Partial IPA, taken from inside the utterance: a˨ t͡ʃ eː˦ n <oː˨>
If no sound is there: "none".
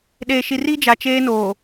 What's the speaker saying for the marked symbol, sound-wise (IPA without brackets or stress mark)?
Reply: oː˨